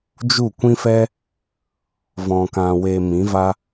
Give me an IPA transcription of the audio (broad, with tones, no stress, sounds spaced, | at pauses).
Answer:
d͡ʒ u˦˨ kʷ ĩ˦ f ɛ˦ | v ɔ̃˨ k ã˨ w e˨ m ĩ˨˦ v a˦